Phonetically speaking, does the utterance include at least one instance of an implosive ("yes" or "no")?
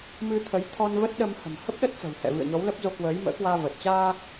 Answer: yes